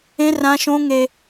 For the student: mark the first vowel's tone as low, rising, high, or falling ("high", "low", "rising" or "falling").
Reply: high